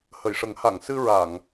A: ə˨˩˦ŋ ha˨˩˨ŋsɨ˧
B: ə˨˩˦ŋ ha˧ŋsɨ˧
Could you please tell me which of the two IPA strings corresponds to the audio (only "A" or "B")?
A